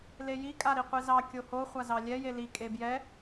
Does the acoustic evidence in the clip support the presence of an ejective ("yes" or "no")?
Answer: yes